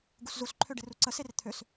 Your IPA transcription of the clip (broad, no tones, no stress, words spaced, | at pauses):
ɡuszusǃʰø ɖɪruǀəser t̪ʰøs